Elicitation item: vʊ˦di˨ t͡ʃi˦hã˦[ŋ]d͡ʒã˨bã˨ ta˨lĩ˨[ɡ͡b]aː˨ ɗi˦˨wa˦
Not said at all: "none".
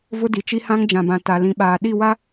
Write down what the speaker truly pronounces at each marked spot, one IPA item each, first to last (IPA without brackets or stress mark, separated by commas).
ŋ, ɓ